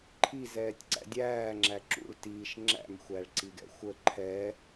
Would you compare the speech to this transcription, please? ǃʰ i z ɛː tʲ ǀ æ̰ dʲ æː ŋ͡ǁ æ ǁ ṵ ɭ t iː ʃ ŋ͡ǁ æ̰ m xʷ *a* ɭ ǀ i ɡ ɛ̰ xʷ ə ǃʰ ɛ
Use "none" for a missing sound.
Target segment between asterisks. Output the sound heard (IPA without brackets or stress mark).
æ